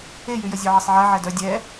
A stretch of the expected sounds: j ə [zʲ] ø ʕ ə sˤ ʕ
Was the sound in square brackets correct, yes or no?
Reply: yes